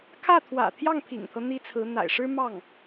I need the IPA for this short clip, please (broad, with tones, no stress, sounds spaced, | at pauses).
kʰ ä˥˩ t̪ʰ w ä̰˨˩ t̪ʰ j ɑ˥˩ ŋ pʰ ḭ˨˩ ŋ t̪ʰ ɤ˦ n̪ i˥ t͡sʰ ɹ̩˧˥ n̪ a̰˨˩ ɪ̯ ʂ ɻ̩˥ m ɑ˥˩ ŋ